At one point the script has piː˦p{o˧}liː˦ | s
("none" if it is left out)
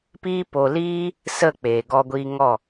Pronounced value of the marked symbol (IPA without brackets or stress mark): o˧